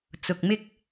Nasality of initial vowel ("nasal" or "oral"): oral